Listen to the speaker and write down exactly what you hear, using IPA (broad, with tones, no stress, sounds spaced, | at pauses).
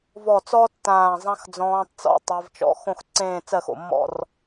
v ɔ˧˩ t͡s ɔ˥ tː ãː˧˩ zˤ ã˥ x d͡z ɔ̃ː˧ tˤ t͡s ɔ̰˧ tˤ e˧ v t͡ʃ ɔ̰˧˩ x õ˥˧ x ǀ ẽː˥˧ t͡s ɜ˥˧ x o̰˧˩ mː ɔ̰˥˧ r